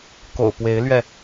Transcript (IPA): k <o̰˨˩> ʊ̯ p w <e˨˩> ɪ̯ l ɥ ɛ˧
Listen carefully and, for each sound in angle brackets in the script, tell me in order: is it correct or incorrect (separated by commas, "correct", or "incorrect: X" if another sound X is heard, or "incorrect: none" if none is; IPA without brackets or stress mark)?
correct, incorrect: e˨˦